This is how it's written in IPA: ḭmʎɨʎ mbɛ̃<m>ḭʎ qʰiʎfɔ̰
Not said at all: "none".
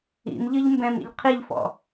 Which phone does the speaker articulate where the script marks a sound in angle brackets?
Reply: m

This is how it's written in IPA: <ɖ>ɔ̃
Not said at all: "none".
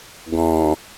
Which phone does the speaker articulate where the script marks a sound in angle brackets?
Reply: ɡ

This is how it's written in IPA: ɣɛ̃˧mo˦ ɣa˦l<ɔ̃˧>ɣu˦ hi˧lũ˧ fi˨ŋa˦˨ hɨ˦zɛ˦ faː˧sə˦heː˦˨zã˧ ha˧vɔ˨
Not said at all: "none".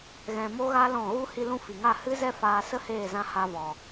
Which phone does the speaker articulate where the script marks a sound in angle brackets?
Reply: ɔ̃˦˨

